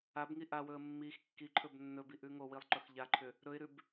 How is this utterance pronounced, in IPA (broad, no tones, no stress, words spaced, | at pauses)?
abŋi ʔawɵə̯ mːix kːiǃʰɵb nːɵbiʔʉ ŋowilˠǃɵx ʎaǃʰʏ | ɾɵɪ̯ɾʉb